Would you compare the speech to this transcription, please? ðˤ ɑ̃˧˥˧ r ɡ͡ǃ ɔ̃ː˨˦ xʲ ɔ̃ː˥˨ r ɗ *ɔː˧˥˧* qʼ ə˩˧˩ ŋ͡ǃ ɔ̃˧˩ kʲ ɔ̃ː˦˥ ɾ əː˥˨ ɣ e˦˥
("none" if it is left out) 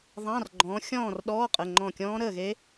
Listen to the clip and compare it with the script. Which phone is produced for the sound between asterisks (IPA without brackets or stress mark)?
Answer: ɔː˧˥˧